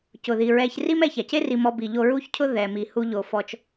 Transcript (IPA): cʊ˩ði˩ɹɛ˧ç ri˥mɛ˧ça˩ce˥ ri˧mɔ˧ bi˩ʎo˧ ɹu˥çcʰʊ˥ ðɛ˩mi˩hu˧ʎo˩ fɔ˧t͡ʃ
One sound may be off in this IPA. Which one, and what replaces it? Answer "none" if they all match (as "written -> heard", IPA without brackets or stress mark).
none